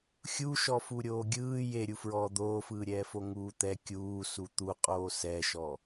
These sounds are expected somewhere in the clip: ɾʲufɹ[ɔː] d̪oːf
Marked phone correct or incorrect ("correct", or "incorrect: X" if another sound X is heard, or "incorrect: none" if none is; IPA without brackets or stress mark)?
correct